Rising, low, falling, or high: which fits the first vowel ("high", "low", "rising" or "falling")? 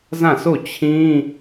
falling